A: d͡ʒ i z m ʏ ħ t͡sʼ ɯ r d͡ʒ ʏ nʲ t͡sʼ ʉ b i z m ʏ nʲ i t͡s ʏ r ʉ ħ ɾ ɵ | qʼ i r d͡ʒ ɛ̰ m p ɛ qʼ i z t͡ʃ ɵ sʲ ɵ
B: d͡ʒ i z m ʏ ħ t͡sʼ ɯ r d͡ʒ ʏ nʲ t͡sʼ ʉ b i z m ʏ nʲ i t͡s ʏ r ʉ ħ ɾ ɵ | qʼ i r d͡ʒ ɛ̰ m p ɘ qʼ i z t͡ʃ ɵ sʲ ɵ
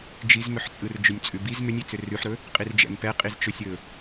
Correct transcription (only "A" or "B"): A